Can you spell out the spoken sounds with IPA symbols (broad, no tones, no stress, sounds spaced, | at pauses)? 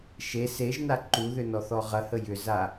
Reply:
ʃ e s e ʒ n a ǃ u ð ʏ n ɔ θ ɔ ʁ ɐ h ə j ʏ z a